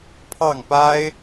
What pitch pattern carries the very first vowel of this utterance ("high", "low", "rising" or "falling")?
falling